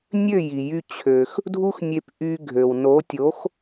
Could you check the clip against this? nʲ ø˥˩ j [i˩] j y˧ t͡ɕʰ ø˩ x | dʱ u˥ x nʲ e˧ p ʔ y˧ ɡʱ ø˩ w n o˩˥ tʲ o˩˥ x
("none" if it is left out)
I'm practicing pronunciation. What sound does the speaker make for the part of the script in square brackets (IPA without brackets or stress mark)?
i˩